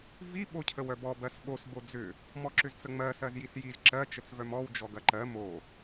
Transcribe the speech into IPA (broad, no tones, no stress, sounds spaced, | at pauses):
v i ɓ o cʰ ə w œ b ɔ b ɜ s ɓ o s b o d͡z ʏ | m ɔ ǁ ʏ z t͡s ə ŋ͡m ɜ s ɜ z j i s j i z ǁ ɜ t͡ʃ ə t͡s v œ m ɔ w d͡ʒ ɔ ɡ ɐ ǃ ɜ m o